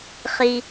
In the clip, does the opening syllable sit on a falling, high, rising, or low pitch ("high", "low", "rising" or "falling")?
low